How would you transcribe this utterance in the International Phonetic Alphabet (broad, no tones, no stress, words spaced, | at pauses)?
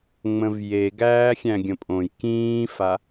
ŋ͡mə̃vje ɡæːxʲæ̃ɡʲə̃pʼõj kĩːfa